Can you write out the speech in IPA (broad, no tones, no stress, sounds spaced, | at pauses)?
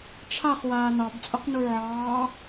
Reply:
ʈ͡ʂʰ a χ w aː n ɑ b t͡sʼ ʊ q n u ʕ ɑː